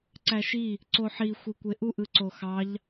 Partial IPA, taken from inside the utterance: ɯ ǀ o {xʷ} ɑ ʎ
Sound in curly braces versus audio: incorrect: x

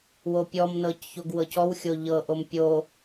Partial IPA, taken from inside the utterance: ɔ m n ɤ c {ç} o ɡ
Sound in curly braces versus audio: correct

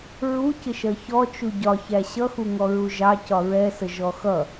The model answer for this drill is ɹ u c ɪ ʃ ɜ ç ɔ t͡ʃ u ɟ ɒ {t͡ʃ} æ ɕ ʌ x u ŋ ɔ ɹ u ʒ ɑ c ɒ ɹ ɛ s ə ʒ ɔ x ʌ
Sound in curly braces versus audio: incorrect: ç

